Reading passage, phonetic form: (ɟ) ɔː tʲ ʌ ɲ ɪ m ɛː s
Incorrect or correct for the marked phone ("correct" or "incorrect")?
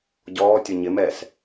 correct